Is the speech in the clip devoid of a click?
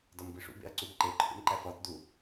no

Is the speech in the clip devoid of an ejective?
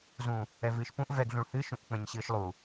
yes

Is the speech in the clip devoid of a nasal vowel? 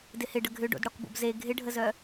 yes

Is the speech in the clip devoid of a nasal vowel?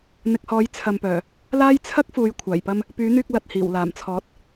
yes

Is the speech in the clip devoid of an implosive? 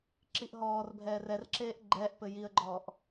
yes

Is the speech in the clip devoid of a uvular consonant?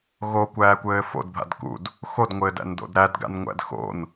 yes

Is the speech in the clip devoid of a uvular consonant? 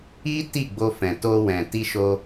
yes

